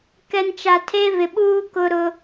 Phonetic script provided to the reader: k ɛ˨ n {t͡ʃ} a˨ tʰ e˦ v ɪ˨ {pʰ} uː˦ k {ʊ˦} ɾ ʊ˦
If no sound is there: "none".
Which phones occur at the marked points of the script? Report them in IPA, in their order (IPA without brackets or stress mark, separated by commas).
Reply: t͡ʃ, ɓ, ʊ˦